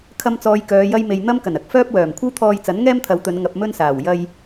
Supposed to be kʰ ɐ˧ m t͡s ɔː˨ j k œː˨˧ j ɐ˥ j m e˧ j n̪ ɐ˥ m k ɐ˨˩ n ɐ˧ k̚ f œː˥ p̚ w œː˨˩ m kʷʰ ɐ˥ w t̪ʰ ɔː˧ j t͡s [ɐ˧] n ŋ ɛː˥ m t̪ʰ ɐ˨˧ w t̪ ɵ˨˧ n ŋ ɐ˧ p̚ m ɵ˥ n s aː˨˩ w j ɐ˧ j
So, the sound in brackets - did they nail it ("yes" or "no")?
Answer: no